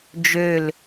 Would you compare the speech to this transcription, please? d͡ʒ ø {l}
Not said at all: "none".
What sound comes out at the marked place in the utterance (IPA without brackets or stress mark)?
l